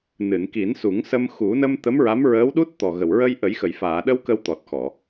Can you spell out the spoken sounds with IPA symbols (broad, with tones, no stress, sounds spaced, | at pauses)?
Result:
n ɨ˨˩˨ n k i˨˩˦ n s u˨˩˦ ŋ s ə˧ m x u˨˩˦ n ə˧ m t̪ ə˧˥ m ɹ a˧˥ m ɹ əː˧˥ w ɗ u˦˥ t̚ t̪ ɔ˨˩ ɣ ə˨˩ w ɹ ə˧ j ʔ ə˨˩˦ j x ə˨˩˨ j f aː˨˩˨ ɗ ə˧ w k ə˧ w t̪ ɔ˨˩ t̚ x ɔ˨˩˨